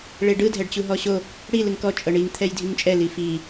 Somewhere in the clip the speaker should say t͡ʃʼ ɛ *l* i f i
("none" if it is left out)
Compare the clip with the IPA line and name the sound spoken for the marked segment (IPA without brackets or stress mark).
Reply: l